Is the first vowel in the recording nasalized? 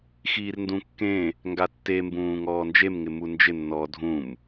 no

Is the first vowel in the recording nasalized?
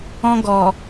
yes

